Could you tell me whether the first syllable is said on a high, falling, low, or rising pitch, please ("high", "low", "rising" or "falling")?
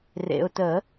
low